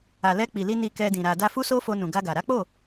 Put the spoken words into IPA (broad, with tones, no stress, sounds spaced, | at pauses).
a˨ l ɛ˧ k͡p i˨ l i˧ n i˧ k ɛ˧ d ĩ˨ ɾ a˨ d a˧ f u˦ s o˦ f o˧ n ũ˨ ɡ a˧ ɡ a˨ ɾ a˨˦ k͡p o˦˨